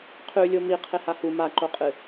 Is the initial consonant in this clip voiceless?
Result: yes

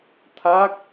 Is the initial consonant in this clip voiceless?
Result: yes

